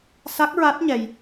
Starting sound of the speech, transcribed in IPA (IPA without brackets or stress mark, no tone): s